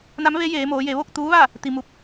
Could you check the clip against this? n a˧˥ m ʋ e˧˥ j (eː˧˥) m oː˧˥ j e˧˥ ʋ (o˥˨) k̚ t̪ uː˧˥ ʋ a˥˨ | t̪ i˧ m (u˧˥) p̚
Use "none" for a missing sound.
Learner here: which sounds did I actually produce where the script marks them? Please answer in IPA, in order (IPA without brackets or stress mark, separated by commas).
eː˧˥, o˥˨, u˧